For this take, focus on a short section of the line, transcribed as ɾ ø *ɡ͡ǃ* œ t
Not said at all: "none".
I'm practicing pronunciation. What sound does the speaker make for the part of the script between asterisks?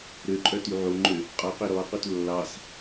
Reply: ǃʼ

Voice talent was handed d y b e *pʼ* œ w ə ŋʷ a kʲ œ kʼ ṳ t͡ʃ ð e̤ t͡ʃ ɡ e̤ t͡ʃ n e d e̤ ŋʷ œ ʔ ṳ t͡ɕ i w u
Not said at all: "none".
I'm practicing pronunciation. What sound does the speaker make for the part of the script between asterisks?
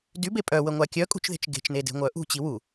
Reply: pʼ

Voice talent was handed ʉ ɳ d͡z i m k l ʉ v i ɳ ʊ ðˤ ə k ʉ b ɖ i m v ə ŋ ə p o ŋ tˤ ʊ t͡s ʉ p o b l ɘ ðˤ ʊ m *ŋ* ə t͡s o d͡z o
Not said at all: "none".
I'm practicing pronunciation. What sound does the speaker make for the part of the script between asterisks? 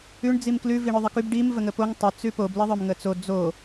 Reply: ŋ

